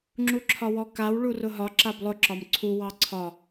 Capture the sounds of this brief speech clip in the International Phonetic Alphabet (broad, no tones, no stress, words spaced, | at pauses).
ŋ͡ǁuǁʰɒwɔkaw ɭurʊɦɒ ǁablˠʊ ǁɒmǀʰu wɑǀʰɒ